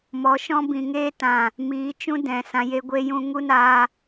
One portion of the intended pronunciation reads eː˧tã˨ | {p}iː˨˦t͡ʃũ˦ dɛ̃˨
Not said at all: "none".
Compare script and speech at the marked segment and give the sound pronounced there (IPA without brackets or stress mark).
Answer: m